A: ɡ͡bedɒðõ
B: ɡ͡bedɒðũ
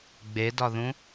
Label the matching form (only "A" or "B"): B